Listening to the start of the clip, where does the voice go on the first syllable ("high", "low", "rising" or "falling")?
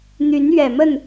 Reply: rising